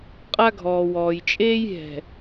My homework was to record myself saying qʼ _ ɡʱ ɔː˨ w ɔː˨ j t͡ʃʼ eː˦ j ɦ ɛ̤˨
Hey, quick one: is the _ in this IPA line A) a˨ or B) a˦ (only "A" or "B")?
B